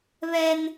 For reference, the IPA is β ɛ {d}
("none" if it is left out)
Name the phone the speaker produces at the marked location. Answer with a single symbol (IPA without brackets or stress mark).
n